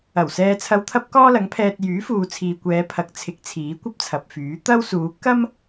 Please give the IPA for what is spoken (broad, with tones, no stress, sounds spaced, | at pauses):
ɐ˨˩ w s ɛː˧ t͡sʰ ɐ˧ w t̪ʰ ɐ˥ p̚ k ɔː˥ l ɐ˨˥ ŋ pʰ ɛː˧ t̚ j yː˨˥ f uː˨ t͡sʰ iː˨ kʷ ɛː˨˧ pʰ ɐ˨˥ k̚ t͡sʰ ɪ˨˥ k̚ t͡sʰ iː˨˥ kʷ ɐ˥ p̚ t͡sʰ ɐ˨ p̚ f yː˨˥ t̪ ɐ˥ w s uː˨˧ k ɐ˥ m